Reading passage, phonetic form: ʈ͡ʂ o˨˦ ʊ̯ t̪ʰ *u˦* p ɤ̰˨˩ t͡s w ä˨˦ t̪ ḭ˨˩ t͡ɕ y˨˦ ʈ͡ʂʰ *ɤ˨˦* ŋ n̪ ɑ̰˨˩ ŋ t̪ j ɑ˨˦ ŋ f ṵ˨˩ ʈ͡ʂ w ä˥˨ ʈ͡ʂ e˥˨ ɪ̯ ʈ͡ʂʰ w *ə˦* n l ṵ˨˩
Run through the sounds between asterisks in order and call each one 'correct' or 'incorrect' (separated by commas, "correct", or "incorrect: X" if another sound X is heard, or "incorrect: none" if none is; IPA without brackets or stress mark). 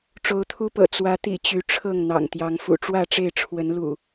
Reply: correct, incorrect: ɤ˥˨, incorrect: ə˨˦